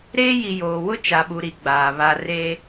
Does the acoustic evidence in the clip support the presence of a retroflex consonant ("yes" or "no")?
no